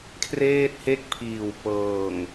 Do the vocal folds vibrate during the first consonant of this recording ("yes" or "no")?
no